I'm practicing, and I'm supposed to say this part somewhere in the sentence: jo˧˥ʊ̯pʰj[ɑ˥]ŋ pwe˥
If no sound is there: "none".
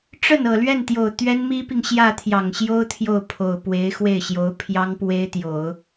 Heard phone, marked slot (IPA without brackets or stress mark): ɑ˥